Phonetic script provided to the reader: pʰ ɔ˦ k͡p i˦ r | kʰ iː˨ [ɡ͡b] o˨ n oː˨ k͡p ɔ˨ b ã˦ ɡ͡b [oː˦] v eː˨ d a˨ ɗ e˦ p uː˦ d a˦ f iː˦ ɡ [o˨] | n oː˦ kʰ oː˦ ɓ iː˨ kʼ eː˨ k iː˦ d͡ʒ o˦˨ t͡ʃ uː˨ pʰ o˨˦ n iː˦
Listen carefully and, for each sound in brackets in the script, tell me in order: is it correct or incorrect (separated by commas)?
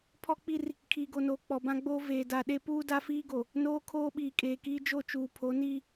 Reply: incorrect, correct, correct